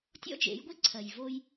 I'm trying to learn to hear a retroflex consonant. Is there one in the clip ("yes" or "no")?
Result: no